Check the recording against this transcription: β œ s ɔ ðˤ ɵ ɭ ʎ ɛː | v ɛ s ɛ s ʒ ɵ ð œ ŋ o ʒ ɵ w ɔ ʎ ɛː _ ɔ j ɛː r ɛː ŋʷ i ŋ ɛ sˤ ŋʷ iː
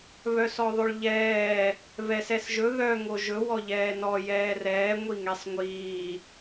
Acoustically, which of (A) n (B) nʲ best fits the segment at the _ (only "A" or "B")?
A